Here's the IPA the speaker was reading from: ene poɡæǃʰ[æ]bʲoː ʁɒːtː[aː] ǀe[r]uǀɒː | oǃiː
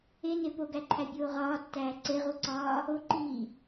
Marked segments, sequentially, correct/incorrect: correct, incorrect, incorrect

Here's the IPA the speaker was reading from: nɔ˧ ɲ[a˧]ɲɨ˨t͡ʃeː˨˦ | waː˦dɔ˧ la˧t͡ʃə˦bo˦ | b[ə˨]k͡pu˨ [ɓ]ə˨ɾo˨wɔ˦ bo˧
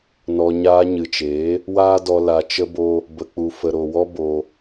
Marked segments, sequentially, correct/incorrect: incorrect, correct, incorrect

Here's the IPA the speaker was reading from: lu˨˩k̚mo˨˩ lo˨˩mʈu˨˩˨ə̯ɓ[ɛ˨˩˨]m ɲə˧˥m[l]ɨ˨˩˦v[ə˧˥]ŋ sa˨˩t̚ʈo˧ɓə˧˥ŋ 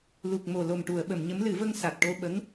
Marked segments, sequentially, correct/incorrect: incorrect, correct, incorrect

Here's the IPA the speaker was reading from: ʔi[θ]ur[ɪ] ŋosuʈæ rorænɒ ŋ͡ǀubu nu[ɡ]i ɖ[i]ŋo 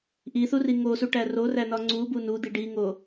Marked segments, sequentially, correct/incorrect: correct, incorrect, incorrect, correct

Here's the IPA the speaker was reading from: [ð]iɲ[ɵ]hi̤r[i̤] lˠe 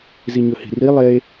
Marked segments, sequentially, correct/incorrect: incorrect, correct, incorrect

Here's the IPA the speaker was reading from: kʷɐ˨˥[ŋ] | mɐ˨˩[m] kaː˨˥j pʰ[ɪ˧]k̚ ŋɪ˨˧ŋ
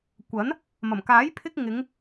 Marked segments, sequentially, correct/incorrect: incorrect, correct, correct

